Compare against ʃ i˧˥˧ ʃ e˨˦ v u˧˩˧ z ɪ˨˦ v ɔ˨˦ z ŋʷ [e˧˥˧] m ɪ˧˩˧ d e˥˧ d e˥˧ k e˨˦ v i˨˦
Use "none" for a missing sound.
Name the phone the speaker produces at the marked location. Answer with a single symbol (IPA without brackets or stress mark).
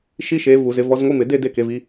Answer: i˧˥˧